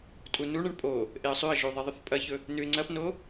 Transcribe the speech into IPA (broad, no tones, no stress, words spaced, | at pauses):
tʼunuɳɐɳ pʼo | ʔeə̯sˤʉə̯ʒʉ ðˤeðˤɵθpʼɐçɵ | nʉɪ̯ŋ͡ǀɐpno